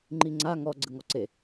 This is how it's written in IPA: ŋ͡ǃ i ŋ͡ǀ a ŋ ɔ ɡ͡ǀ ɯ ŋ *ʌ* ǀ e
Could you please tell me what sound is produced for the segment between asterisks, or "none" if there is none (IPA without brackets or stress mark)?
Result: ɔ